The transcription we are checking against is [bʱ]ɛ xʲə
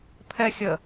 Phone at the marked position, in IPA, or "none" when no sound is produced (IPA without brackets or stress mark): pʰ